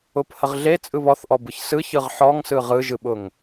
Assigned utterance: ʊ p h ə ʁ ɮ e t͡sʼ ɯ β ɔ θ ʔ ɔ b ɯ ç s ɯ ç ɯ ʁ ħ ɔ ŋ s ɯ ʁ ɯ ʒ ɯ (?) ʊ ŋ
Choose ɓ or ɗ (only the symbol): ɓ